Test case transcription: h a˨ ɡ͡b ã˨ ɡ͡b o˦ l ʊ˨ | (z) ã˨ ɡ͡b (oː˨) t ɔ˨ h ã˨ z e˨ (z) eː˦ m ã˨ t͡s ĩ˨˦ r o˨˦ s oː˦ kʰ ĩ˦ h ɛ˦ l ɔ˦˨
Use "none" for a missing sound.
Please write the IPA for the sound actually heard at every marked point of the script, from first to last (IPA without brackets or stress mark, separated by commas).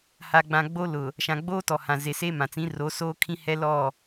ʃ, oː˦, s